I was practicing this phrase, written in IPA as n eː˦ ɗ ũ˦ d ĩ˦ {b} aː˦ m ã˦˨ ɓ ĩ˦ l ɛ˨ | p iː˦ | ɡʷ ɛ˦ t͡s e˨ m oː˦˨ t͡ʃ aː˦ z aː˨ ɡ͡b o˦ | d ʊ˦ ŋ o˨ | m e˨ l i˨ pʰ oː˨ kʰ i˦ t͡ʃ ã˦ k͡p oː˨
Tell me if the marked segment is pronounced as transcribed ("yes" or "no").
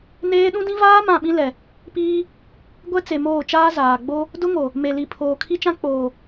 no